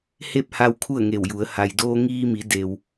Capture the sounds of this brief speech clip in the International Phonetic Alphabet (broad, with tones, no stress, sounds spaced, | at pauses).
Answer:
h e˥˨ p̚ h a˧ w kʰ u˥˨ ə̯ ŋ e˧˩ w j u˩˧ ə̯ h a˩ j d oː˧ ŋ iː˧ m i˩˧ d e˩ w